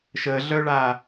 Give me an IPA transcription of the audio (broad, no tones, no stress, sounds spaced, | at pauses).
ʃ ə ɮ œ ɭ a